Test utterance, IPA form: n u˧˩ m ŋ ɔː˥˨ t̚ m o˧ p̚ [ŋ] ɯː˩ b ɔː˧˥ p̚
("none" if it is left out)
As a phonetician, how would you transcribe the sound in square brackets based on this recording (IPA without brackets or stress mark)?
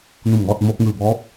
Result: ŋ